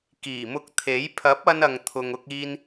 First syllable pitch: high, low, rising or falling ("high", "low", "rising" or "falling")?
low